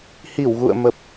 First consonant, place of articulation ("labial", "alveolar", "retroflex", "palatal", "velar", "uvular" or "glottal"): glottal